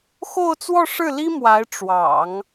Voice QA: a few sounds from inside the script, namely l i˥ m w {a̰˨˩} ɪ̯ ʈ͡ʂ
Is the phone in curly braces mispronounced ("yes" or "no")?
yes